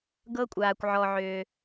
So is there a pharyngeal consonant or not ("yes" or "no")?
yes